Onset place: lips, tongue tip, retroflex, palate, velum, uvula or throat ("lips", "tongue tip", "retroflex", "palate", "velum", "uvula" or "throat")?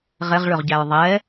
uvula